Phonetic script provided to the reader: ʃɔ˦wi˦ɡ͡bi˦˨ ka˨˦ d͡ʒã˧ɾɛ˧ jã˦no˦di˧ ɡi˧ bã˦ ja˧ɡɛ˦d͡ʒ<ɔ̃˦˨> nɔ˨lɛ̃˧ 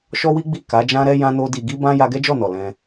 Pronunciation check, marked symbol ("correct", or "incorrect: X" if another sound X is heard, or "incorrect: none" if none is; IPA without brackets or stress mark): incorrect: ɔ˦˨